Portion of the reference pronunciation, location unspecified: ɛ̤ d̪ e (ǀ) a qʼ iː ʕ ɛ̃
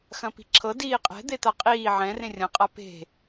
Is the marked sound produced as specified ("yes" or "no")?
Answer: no